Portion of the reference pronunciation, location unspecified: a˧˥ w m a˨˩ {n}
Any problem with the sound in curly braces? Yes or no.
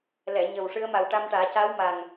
yes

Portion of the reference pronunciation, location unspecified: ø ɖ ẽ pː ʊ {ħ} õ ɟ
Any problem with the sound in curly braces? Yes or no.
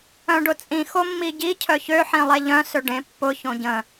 yes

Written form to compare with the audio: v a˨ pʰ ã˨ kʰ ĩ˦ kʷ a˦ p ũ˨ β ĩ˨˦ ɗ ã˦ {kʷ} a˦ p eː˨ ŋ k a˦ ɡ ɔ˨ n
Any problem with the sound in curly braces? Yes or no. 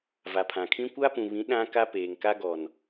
yes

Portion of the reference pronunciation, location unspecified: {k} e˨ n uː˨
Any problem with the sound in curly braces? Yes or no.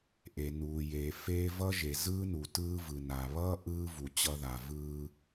yes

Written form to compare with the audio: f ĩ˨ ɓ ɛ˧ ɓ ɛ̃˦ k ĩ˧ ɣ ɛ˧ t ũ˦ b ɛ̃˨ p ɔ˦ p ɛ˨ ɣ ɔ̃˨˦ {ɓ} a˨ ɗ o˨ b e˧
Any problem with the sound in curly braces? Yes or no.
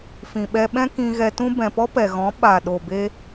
no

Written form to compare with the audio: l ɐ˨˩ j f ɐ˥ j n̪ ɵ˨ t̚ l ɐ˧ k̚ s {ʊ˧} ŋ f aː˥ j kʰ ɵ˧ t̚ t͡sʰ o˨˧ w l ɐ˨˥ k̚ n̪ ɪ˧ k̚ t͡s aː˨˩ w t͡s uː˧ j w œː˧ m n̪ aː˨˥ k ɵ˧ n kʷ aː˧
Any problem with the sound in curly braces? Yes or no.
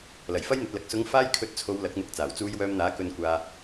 yes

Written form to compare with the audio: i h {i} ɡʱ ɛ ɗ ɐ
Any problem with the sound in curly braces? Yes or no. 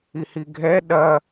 no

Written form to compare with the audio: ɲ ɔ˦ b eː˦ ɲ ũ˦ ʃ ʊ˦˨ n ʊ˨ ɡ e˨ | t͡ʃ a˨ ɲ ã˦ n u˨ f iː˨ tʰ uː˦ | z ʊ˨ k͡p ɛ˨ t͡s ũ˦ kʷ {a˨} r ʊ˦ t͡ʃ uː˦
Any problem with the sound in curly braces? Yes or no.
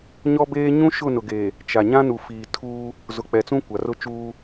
no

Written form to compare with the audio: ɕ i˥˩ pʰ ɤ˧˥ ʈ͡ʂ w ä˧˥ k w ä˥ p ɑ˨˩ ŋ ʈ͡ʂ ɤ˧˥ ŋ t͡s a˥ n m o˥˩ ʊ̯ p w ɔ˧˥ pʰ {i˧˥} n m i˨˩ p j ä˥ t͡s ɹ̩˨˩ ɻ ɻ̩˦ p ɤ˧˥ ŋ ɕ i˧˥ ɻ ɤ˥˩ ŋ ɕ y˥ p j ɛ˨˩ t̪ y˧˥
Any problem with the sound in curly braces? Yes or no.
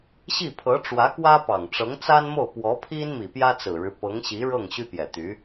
yes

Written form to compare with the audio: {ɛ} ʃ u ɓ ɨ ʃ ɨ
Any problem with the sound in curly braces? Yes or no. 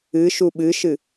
yes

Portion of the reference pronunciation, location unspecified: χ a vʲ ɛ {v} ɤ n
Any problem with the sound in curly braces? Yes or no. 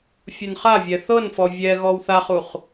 yes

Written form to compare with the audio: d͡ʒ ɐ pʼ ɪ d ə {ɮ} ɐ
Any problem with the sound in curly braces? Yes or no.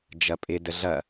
no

